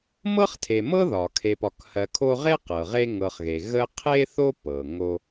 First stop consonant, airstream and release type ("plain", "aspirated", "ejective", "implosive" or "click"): aspirated